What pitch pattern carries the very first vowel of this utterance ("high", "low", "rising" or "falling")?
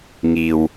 low